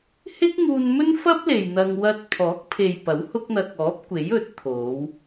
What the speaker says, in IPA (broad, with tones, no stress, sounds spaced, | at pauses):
h ɪ˥ k̚ ŋ uː˧ n m ɵ˥ n f ɐ˥ p̚ l e˨ j n̪ ɐ˧ ŋ w ɐ˧ t̚ pʰ ɔː˨˥ k̚ pʰ e˨ j p ɐ˨˥ w h ʊ˥ k̚ n̪ ɐ˧ k̚ ɔː˨˥ p̚ kʷ e˨˥ j ɵ˨˥ t̚ t̪ʰ o˨˧ w